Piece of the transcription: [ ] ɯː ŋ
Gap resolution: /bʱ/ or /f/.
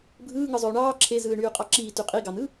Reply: bʱ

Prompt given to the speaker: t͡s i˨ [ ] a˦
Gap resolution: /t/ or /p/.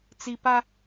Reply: p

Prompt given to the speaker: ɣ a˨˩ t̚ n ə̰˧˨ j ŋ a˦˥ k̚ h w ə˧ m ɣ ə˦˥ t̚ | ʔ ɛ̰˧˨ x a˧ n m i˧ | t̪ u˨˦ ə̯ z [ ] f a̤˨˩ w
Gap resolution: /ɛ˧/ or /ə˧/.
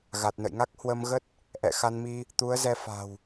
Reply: ɛ˧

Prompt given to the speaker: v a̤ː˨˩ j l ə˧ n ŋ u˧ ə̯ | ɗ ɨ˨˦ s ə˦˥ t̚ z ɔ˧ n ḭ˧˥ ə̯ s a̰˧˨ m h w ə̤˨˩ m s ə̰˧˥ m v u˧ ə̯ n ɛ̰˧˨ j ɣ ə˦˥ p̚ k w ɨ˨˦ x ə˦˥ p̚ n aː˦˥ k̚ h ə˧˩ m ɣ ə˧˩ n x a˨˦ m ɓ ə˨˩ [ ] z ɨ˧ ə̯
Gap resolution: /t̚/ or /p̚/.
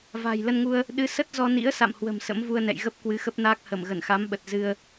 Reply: t̚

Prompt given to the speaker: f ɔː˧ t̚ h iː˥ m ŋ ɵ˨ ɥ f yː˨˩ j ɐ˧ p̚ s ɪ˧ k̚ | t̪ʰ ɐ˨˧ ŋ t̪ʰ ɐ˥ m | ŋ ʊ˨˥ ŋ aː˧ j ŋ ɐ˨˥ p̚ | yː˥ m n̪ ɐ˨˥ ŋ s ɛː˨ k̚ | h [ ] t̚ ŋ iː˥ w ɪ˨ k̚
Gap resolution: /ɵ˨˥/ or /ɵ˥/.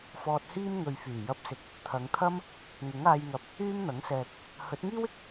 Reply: ɵ˨˥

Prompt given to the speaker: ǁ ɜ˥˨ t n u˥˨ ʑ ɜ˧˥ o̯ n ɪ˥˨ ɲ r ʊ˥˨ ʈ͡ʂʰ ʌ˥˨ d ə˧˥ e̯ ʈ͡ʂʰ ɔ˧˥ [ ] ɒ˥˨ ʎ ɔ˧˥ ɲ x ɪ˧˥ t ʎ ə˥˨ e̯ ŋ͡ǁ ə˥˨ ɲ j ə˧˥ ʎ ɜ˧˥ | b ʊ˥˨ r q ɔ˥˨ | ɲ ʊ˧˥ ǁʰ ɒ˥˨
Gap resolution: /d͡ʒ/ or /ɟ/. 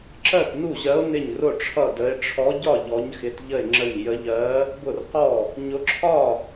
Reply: ɟ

